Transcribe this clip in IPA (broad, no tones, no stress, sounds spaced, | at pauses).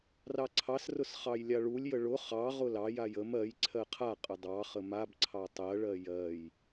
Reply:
r ɑ ǀʰ ɑ s r ʊ s χ ɑ j lʲ a ɭ u lʲ j ə ɭ ʊ χ ɑ ʁ ʊ l ɑ j a j ə m ɜ j ǀʰ ɜ qʰ a qʼ ə dˤ ɑ χ ə m a b ǀʰ ɑ tˤ ɜ ɭ ɜ j ɜ j